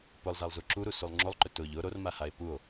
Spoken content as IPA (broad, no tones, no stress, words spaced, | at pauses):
pʊlˠ zalˠzuǁuɾu sulˠŋ͡ǁolˠǃʏ tʊʎ ʊ ɾormahae̯ puo̯